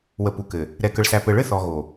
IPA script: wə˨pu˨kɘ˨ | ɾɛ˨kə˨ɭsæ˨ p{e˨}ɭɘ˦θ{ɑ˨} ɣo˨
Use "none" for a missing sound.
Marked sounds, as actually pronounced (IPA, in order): ɘ˨, ɔ˨

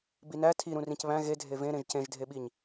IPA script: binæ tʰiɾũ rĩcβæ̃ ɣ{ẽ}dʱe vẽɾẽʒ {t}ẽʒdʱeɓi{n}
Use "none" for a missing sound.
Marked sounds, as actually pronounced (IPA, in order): e, c, ɲ

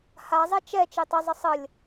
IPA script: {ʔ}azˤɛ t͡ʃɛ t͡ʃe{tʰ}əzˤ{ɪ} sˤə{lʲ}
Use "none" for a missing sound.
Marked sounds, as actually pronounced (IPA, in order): h, tˤ, ə, lʲ

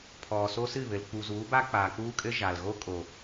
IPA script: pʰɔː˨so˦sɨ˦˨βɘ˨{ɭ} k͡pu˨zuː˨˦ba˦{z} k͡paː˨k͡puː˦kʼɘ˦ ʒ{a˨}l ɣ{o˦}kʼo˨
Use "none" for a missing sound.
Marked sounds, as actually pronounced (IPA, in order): l, none, a˨, o˦

